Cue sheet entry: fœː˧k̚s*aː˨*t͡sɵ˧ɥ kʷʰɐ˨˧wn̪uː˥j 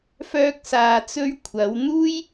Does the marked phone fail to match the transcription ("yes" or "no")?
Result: no